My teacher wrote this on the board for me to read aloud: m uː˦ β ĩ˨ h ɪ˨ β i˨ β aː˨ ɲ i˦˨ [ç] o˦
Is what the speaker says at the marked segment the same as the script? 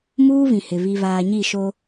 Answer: no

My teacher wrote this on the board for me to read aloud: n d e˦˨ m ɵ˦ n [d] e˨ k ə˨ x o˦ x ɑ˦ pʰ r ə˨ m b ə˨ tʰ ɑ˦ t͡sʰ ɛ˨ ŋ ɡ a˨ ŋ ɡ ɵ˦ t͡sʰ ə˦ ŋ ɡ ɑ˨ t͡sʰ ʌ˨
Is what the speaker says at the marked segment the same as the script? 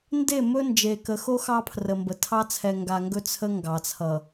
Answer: no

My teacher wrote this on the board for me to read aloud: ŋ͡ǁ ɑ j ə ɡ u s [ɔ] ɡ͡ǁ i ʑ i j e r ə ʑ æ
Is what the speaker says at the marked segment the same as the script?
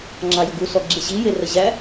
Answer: yes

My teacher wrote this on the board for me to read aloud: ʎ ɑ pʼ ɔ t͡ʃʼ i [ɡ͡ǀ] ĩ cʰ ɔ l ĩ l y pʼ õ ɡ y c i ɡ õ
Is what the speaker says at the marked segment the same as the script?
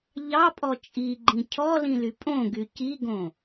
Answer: no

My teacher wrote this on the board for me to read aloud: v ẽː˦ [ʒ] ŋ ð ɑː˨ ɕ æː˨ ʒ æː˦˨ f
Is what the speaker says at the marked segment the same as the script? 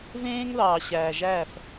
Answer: no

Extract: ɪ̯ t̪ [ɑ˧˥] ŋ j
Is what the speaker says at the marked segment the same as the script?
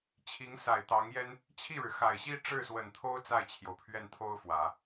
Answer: yes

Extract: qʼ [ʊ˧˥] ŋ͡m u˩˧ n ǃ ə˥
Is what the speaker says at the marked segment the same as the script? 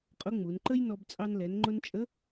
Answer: yes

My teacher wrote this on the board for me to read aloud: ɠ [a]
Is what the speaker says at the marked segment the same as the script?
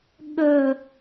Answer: no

